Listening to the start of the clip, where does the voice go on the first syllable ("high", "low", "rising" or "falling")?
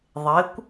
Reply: rising